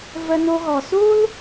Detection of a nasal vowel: absent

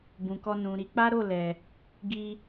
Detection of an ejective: absent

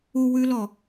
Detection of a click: absent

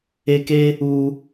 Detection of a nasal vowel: absent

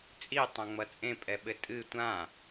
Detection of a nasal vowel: present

